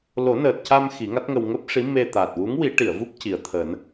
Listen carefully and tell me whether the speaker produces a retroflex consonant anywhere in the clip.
yes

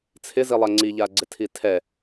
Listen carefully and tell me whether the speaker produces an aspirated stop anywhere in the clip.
yes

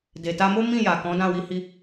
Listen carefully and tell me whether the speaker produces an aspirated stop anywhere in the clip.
no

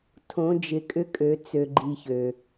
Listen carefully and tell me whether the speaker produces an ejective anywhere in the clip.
yes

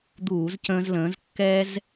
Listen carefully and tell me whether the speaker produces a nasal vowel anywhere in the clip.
yes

